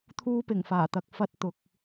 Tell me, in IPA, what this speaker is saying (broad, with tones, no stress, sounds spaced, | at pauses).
t̪ʰ uː˧ p ɪ˨˩ ŋ f aː˨˩ t̪ ɐ˨ k̚ f ɐ˥ t̚ t̪ ʊ˨˥ k̚